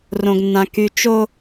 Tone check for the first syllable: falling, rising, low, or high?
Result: low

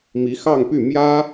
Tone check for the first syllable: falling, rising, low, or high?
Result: rising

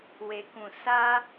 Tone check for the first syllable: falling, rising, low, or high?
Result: low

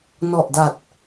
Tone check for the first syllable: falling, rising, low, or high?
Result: low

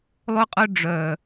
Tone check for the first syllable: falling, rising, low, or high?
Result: high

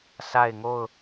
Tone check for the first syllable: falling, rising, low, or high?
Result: falling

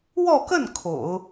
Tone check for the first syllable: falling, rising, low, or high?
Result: falling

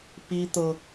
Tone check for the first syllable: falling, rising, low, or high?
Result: high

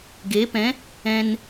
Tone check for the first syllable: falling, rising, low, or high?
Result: rising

